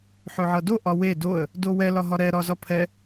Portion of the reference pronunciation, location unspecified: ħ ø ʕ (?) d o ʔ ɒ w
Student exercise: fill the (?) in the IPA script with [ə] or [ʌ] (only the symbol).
ʌ